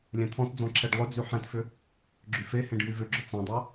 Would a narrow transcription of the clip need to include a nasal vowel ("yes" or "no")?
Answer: yes